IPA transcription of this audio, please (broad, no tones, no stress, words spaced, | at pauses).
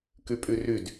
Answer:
kypʼyryd